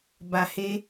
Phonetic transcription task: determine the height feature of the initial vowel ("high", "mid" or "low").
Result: low